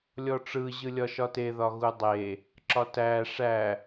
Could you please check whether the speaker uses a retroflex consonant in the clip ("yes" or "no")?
yes